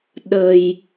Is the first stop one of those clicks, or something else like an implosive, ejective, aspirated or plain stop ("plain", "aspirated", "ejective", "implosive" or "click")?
implosive